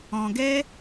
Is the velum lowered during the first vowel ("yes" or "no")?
yes